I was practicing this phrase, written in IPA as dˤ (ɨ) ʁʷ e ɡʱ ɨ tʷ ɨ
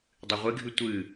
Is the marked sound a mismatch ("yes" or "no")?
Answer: no